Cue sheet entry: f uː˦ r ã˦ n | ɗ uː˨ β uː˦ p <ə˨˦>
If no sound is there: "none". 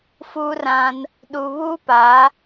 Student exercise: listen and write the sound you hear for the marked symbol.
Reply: a˨˦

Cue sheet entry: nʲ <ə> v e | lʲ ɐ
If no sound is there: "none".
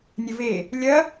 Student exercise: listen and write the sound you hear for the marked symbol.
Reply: ə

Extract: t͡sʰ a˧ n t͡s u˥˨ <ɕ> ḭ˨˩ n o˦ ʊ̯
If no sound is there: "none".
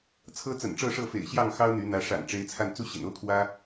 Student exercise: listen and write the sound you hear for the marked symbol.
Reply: ɕ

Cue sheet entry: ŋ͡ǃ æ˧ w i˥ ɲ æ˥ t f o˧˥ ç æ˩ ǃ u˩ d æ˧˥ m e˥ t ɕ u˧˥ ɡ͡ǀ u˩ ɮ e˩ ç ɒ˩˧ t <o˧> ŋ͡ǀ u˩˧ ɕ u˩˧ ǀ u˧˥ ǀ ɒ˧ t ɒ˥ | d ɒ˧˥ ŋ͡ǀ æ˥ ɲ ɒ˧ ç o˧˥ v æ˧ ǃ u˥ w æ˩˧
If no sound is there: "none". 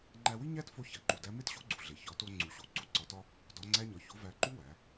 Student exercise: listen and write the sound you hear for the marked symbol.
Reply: o˧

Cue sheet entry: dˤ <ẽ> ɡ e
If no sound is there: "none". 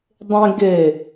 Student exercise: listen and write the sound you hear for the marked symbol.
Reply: ẽ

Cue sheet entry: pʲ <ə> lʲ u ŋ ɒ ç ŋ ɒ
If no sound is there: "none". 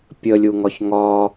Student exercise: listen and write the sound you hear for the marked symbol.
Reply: ə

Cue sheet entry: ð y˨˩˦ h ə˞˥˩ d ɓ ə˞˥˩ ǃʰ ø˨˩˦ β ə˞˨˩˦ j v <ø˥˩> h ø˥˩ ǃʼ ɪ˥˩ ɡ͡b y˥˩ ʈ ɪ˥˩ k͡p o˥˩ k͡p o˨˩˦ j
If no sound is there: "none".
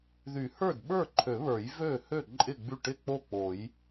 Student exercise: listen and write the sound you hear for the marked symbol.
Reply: ø˥˩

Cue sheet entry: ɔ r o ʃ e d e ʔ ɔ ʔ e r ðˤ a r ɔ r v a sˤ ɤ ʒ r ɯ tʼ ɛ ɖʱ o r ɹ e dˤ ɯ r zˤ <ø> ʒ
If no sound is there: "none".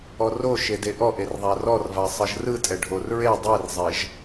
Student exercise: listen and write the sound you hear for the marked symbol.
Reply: ɛ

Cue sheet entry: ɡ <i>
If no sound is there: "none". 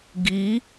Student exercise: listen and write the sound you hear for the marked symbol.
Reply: i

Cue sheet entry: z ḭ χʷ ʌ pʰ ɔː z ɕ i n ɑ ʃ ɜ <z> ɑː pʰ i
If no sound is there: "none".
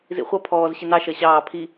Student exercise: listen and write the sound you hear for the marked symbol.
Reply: ɕ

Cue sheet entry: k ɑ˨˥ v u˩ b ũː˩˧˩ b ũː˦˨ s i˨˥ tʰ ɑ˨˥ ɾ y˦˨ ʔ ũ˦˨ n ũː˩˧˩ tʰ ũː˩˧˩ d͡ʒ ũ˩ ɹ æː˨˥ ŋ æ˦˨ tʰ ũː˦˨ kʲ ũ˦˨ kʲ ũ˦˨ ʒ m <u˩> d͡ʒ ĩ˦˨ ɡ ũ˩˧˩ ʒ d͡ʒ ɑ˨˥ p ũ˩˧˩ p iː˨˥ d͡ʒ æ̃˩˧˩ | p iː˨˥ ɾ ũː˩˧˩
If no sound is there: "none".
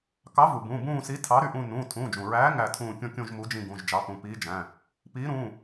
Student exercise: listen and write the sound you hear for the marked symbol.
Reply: u˨˥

